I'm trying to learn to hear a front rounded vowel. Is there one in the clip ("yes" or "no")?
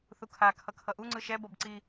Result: no